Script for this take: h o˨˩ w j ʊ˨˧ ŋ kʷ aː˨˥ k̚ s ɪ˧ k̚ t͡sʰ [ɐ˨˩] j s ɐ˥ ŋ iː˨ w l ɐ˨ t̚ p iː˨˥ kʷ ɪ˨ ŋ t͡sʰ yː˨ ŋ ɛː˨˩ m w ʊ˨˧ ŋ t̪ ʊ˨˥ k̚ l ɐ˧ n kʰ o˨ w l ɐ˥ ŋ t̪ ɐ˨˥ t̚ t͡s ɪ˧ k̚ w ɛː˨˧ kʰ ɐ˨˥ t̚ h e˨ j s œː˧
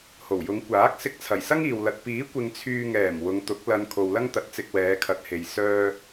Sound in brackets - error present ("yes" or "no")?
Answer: no